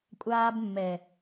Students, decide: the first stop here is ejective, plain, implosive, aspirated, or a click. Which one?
ejective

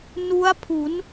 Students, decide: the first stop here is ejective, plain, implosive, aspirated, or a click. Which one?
aspirated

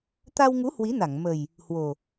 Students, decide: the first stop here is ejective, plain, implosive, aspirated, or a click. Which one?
plain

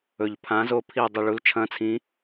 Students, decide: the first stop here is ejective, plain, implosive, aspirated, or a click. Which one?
aspirated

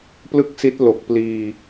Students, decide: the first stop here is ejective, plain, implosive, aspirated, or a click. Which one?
plain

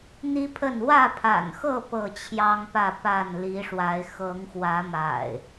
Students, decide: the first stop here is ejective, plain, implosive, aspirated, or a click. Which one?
aspirated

